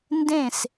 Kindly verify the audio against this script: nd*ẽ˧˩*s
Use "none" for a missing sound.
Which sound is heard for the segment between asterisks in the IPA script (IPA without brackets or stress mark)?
ẽ˧˩